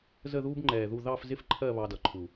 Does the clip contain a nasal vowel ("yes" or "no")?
no